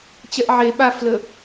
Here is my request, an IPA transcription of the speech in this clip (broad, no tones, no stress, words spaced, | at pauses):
t͡ɕɛʔʕe ɓaflə